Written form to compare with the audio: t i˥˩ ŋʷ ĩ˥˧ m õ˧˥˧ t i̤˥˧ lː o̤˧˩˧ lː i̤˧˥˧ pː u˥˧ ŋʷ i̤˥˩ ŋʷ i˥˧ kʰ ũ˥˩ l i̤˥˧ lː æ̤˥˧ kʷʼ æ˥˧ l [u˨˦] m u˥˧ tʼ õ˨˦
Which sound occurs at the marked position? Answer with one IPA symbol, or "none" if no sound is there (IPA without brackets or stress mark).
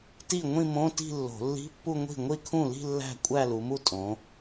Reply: u˨˦